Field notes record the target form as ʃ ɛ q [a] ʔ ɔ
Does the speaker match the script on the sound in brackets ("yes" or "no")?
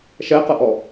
no